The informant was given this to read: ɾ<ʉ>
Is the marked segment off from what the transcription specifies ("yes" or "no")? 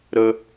yes